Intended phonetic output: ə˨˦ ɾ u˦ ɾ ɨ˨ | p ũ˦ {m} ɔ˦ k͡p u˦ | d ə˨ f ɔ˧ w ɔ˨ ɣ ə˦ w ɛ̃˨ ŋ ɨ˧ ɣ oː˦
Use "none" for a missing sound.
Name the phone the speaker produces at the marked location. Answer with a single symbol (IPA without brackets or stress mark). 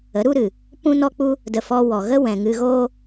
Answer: n